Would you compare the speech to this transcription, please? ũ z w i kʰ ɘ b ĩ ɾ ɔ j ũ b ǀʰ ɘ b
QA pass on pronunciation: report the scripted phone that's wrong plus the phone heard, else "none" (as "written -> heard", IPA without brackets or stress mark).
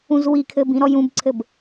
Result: none